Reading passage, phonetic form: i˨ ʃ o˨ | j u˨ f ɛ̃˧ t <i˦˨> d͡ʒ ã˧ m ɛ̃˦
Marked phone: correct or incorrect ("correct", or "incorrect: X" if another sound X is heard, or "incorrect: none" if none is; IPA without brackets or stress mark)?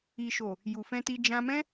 incorrect: i˧